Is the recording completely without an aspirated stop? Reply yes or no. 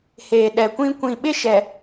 yes